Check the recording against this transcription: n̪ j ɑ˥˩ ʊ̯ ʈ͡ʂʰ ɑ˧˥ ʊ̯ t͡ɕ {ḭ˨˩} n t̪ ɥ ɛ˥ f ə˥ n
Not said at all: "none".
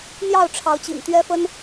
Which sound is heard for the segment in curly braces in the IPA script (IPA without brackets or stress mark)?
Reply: ḭ˨˩